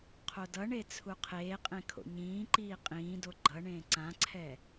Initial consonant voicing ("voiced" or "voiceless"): voiceless